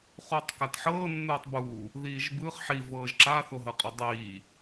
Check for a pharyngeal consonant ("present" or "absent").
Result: present